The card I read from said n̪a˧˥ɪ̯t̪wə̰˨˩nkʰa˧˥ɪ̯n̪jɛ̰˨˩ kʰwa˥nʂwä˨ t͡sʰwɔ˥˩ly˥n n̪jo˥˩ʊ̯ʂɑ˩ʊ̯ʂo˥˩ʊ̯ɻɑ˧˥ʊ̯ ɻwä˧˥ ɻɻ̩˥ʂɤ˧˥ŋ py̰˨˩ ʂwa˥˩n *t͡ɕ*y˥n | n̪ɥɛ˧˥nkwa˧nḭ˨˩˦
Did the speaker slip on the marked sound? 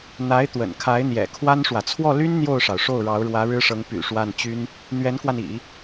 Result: no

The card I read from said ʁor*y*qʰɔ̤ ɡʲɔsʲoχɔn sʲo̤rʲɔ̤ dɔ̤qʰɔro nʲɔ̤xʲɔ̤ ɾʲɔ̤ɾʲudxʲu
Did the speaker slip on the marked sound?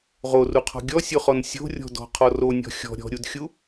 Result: yes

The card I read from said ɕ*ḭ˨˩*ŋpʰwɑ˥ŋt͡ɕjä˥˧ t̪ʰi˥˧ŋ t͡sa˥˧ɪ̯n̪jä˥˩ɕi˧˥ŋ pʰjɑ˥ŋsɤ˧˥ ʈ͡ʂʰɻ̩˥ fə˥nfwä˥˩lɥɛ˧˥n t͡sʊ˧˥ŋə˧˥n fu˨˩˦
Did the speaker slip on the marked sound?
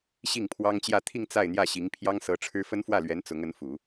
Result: yes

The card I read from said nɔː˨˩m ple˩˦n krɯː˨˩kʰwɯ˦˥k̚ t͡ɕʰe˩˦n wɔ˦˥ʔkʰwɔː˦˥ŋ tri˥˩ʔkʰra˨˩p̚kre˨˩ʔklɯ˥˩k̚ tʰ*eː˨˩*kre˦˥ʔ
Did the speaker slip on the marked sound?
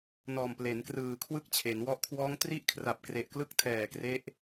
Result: yes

